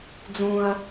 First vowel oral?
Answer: no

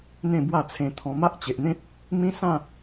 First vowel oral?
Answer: no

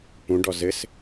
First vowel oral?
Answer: no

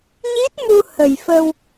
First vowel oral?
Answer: yes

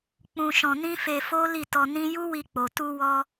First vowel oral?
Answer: no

